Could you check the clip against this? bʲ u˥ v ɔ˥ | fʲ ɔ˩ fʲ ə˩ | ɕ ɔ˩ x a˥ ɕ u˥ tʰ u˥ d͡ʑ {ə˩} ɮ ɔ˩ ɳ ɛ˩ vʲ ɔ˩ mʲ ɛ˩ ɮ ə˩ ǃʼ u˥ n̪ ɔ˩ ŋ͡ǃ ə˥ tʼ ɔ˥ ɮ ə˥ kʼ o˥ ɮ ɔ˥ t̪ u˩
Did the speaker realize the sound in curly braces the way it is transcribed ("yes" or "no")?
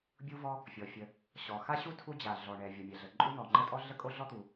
no